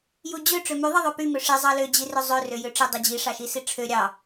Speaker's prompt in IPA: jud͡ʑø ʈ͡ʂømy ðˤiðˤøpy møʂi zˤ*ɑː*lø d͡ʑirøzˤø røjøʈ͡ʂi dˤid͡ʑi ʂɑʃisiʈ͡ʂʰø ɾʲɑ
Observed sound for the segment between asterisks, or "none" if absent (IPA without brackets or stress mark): ɑ